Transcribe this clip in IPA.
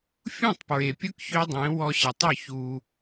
fʲ ũ˦˨ tˤ p ɹ e˨ pʲ ʊ˦ k ç ø˦ dˤ ẽ˨˦ w ɔ˧ ɕ ɪ˨ tˤ ʊ˦˨ ç u˧

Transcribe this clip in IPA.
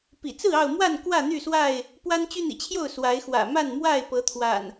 p ḭ˨˩ t͡s ɹ̩˥˨ ɑ˥˨ ʊ̯ m w a˥˨ n k w ä˥˨ n̪ y˥˨ s w a˥˨ ɪ̯ | p w a˦ n t͡ɕ y˦ n̪ ḭ˨˩ t͡ɕʰ j o˥˨ ʊ̯ s w a˨˦ ɪ̯ x w ä̰˨˩ m a˥˨ n m w a˥˨ ɪ̯ p ɤ˨˦ t̪ʰ w a̰˨˩ n

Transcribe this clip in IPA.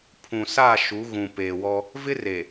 pʰ ũ˨ s a˦˨ ʃ u˨˦ ɣ ũ˨ p eː˨ w ɔ˦ | v ɪ˦ r e˨

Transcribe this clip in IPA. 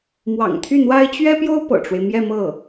m w ɑ̰˨˩ ŋ t̪ʰ y˥˩ n̪ w a˥ ɪ̯ t͡ɕ ɥ ɛ˥ p j o˥ ʊ̯ p ɤ̰˨˩ ʈ͡ʂ w e˦ ɪ̯ m j ɛ˥˧ m ɤ˥˩

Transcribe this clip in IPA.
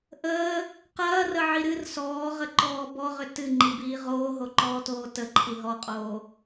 ʔ əː | q ɐː r ə ʕ i ɾ ɨ r s ɔː ʁ ə ǃ ɔː b ɔ ʁ ʏ t ɨ ŋ͡ǃ i b iː ʁ oː ɦ o ǃ ɔː t oː t ə ǃʰ i ɦ ɔ qʼ oː

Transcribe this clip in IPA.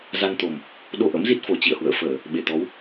z a˧ n t̪ o˨˩ m | ɗ o˧ ʔ ə̰˧˥ m z i˦˥ t̚ f o˨˩ t͡ɕ ḭ˧˨ ə̯ h w ə̰ː˧˨ f əː˧˩˨ | ɓ e˧˩ t̪ ɔ˨˦ w

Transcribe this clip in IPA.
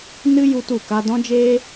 n ɨ˦ j u˦ t u˦˨ k a˦ d ɔ̃˦ d͡ʒ eː˦

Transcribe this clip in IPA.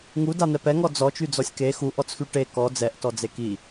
ŋ u d a n̪ ɛ p ɛ ŋ ɔ d͡z ɔ t͡ʃ y d͡z ɔ sʲ k e x u ʔ ɔ t͡s x y ʈ e k ɔ d͡z ɛ ʔ t ɔ d͡z e k i

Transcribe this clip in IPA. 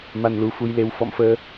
m a˧ n l u˨˦ f u˧ j l e˧ w f ɔ̰˧˨ m f əː˧

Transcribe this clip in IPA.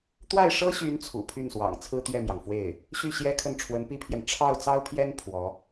t̪ w a˥˩ ɪ̯ ʂ ɤ˥ ɕ y˧˥ n t͡sʰ ṵ˨˩ pʰ y˥˩ n s w ɑ̰˨˩ ŋ t͡sʰ ɹ̩˥ t̪ ɥ ɛ˥˩ m j ɑ˩ ŋ f w e˥˩ ɪ̯ | ɕ y˥˩ ɕ j ɛ˥ kʰ ə˥˩ n ʈ͡ʂʰ w ə˧˥ n p i˥ pʰ j ɛ˨ n ʈ͡ʂʰ ɑ˥˩ ʊ̯ t͡s ɑ˥ ʊ̯ pʰ j ɛ˥ n pʰ w ɔ˧˥

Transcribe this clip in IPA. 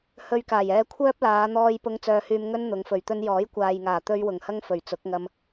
h ɵ˧ ɥ k aː˨˩ j ɛː˧ kʷʰ œː˥ p̚ l aː˨˧ n̪ ɔː˧ j p ʊ˧ ŋ t͡s œː˧ h yː˧ m ŋ ɵ˥ n n̪ ʊ˨˧ ŋ f ɵ˨ ɥ t̪ ɵ˥ n j ɔː˨˥ j kʷ aː˨ j ŋ aː˨˩ t̪ ɵ˧ ɥ w ʊ˨˩ ŋ h ɐ˥ ŋ f ɵ˨˩ ɥ t͡s ʊ˨˥ k̚ ŋ ɐ˧ m

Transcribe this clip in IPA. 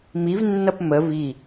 m i v nː ʌ p m ə v i

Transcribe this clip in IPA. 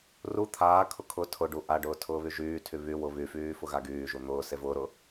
r u t̪ʰ aː kʰ ʊ kʰ ʊ tʰ ʊ ɖ u ʔ a ɖ ʊː tʰ ʊː β y ʒ yː tʰ y β y w ʊ β y f yː f ʊ ɣ a ɡ yː ʒ u n̪ ʊː s e v ʊː ɾ ʊ

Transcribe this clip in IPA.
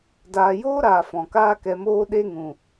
d aː˨ j oː˦ ɾ aː˨ f ɔ̃˨ k aː˦ k ɛ˧ m oː˦ ɗ e˦ ŋ ũ˨

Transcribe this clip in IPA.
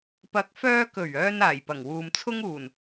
p ɐ˨˥ k̚ f œː˧ k ɵ˨˩ ɥ œː˧ n aː˨˩ j p ɐ˨˩ ŋ w uː˨ m t͡sʰ ʊ˥ ŋ uː˨˩ n

